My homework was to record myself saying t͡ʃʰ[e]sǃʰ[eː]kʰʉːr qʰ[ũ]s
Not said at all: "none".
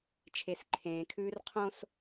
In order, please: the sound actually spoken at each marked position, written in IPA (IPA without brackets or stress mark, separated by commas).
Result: e, ẽː, õ